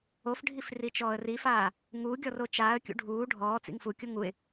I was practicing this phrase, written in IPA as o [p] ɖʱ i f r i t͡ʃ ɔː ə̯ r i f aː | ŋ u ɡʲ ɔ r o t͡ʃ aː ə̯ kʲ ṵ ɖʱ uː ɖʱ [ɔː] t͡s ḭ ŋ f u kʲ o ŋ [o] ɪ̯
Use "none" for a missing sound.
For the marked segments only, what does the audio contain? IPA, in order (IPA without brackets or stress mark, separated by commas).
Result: f, ɔː, u